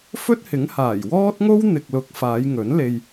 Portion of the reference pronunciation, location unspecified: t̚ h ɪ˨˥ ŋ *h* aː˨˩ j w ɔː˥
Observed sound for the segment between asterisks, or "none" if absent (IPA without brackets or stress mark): h